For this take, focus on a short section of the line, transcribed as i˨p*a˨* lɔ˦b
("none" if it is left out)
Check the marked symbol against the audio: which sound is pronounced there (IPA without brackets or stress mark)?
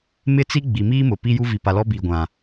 a˨